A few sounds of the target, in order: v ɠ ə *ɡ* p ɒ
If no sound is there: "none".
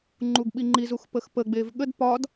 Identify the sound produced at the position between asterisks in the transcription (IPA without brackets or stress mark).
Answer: d